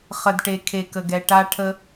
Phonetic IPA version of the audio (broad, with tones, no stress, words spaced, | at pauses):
χə˨dʈe˨ kʰe˨kə˨ɡɛ˨ ʈa˧ʈʰə˧